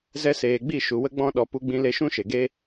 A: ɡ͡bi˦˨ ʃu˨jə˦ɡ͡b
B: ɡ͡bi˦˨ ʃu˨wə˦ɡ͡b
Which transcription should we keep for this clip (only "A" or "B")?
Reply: B